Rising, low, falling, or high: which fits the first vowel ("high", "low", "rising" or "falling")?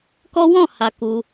high